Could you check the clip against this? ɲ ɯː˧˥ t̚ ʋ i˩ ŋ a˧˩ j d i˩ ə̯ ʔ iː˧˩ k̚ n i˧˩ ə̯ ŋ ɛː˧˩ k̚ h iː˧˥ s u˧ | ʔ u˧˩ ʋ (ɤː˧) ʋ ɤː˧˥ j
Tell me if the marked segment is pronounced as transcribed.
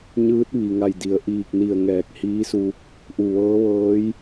no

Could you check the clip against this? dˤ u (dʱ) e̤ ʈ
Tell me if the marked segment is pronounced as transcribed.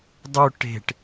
no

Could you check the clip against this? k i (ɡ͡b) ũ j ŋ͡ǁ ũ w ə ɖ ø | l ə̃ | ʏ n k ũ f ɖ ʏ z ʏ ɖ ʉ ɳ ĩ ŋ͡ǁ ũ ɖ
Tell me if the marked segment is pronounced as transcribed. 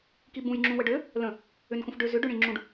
no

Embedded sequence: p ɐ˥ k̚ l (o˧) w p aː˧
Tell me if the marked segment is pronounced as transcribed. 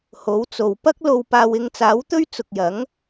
yes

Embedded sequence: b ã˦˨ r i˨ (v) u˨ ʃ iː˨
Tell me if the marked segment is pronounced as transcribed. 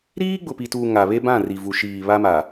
yes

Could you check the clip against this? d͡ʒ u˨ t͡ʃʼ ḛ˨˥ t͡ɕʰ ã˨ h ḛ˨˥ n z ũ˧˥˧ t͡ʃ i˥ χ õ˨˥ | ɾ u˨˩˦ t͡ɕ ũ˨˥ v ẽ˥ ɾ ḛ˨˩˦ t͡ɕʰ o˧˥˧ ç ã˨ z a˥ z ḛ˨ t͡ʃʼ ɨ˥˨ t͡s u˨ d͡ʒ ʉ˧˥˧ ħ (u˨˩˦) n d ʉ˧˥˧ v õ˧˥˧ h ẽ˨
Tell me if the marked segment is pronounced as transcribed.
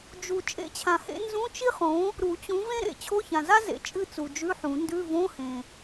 no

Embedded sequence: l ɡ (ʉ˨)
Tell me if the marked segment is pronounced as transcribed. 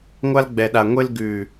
yes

